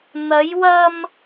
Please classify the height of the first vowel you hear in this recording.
low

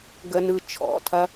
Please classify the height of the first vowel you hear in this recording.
mid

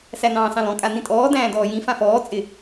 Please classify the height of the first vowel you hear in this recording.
low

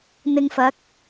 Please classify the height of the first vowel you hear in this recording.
high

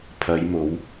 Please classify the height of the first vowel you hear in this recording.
low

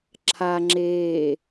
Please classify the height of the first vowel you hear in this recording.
low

